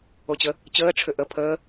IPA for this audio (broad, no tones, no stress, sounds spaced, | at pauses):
o t͡ɕ ə | t͡ɕ əː ʈ͡ʂʰ ʏ ʔ ə pʰ əː